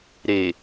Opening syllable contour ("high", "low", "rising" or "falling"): low